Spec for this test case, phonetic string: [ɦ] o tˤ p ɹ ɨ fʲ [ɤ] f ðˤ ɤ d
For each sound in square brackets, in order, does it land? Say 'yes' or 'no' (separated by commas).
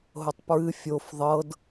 yes, no